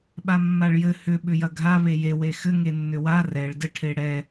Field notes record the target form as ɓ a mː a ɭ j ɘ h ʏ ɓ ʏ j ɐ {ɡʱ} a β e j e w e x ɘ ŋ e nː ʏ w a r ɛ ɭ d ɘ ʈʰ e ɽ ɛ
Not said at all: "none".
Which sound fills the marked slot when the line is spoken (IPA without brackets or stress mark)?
ɡʱ